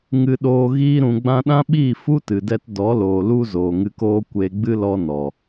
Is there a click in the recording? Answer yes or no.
no